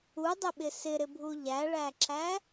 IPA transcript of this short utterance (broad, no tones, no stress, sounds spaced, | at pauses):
u dˤ ɪ ɓ ɪ s ɪ ɾ ɪ bʱ u ʎ æ ɭ æ ǁ æ